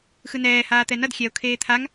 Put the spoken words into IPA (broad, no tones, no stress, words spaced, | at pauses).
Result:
xɯnɛː haːt̪ɛnʌd xʲɛo̯ kʰeːt̪ʰaŋ